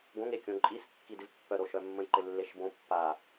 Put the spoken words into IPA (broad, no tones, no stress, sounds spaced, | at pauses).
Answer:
ɡ õ ŋ e kʲ õ ǃʼ i s kː i d ɪ v pː œ ɾ o ʃ œ mː ə̃ j ǃ ɪ lː e ʃ b õ pː a